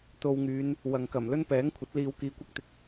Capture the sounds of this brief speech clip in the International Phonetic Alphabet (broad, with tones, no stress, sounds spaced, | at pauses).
t̪ o˧ w ŋ yː˨˧ n | w ɐ˨ ŋ k ɐ˨˩ m l ɵ˥ n p ɛː˨˥ ŋ kʷʰ ɐ˨˥ t̚ l iː˨˧ w k iː˨˧ kʷ ɐ˥ k̚ t̪ ɪ˧ k̚